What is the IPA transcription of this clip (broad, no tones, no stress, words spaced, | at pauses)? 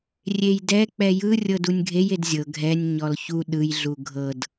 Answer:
rʲejdɛ k͡pɛjɯ rʲɤdunʲɡʱej edzʲɤ ɡʱɛnʲ ɲɔlçu ɗɯj ɮuɡʱɤd